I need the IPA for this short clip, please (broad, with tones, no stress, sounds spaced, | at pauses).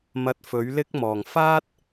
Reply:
m ɐ˧ t̚ f ɵ˨˥ ɥ l ɪ˥ k̚ m ɔː˨˩ ŋ f aː˥ t̚